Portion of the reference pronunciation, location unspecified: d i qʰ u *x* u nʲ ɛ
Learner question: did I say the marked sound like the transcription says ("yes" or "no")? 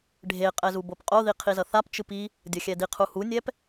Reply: no